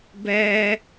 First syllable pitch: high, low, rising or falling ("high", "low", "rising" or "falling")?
low